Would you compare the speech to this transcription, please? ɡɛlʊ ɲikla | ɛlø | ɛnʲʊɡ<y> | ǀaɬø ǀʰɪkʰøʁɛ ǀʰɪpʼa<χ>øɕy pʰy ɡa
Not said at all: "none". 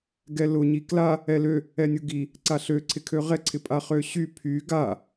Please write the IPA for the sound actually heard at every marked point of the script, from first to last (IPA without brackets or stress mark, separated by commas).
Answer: i, χ